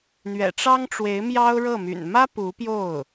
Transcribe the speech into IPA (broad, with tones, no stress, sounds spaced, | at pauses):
n̪ ɥ ɛ̰˨˩ ʈ͡ʂ ɑ˥ ŋ ʈ͡ʂ w e˧˥ ɪ̯ m j ɑ˥ ʊ̯ ɻ ɤ˥˩ m y̰˨˩ n m ä˥ p u˧˥ p j o˥˩ ʊ̯